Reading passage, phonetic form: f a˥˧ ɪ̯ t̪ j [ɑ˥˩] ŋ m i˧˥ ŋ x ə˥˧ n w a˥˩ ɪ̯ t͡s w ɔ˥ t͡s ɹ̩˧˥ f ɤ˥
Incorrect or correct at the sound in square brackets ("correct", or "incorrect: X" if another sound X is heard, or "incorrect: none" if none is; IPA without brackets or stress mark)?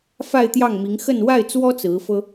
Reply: correct